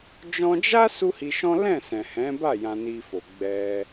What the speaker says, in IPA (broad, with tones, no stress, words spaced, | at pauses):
d͡ʒɔ̃˧d͡ʒa˦ su˦hi˧ʃɔ̃˦ lɛ̃˦˨sɛ̃˨hɛ̃˨˦ba˦˨ jã˧ni˧fo˨ ɡ͡bɛ˧